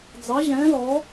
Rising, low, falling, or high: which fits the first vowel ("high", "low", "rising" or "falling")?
rising